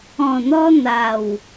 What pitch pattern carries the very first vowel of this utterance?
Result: low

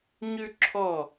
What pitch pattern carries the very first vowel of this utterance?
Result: high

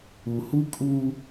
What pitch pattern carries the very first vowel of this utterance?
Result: low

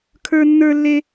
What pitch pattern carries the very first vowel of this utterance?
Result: high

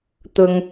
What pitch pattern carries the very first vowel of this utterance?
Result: low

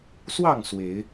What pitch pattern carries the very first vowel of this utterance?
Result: falling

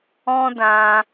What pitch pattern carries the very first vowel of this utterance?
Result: high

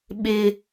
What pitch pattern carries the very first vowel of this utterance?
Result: high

